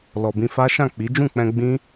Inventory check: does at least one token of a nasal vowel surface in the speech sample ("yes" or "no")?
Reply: yes